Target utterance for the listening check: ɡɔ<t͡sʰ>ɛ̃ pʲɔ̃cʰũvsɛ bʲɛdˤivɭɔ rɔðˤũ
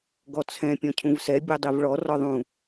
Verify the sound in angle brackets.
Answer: correct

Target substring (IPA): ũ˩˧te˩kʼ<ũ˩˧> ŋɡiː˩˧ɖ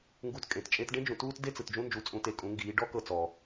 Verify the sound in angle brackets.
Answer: correct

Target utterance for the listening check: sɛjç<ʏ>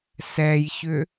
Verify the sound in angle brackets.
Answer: correct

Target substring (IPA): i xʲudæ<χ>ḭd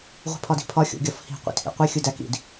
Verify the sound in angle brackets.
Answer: incorrect: k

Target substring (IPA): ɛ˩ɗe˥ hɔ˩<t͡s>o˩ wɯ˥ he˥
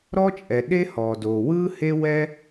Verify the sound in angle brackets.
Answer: incorrect: d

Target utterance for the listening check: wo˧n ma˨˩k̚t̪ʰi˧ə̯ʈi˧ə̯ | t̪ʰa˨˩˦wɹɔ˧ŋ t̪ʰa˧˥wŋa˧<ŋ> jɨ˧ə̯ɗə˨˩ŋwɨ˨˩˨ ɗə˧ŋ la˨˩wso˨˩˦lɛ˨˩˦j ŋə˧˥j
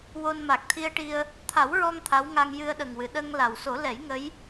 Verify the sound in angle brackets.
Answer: correct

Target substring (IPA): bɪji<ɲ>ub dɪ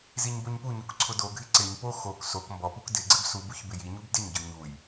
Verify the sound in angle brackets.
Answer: correct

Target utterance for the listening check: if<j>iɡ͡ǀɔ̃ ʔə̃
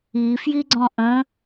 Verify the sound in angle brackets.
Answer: correct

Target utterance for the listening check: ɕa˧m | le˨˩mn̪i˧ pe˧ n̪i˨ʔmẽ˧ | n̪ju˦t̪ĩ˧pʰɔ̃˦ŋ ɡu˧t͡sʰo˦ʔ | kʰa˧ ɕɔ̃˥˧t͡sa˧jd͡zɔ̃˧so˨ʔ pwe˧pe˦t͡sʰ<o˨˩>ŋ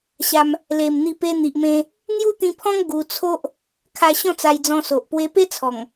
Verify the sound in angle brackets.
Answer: incorrect: ɔ˨˩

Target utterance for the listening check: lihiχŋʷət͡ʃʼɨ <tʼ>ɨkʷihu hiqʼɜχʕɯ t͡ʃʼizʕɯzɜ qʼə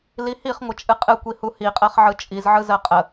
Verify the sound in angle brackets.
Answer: incorrect: qʼ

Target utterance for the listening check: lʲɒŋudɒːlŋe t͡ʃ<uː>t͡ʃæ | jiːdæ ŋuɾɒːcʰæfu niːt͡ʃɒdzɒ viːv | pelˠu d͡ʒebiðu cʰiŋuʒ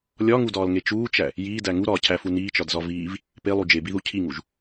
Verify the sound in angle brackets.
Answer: correct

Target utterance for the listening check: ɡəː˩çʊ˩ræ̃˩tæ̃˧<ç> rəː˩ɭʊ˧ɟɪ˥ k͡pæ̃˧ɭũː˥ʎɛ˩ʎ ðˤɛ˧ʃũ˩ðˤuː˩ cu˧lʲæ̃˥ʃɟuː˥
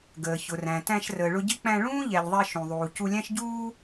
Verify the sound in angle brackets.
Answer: incorrect: ʃ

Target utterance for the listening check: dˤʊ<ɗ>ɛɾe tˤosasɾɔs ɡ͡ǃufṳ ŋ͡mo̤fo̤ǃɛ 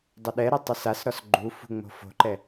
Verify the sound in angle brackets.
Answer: correct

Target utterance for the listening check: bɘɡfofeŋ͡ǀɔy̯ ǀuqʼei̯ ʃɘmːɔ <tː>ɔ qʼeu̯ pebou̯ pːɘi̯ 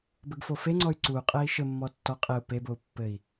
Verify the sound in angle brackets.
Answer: correct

